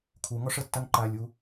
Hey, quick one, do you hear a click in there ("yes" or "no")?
yes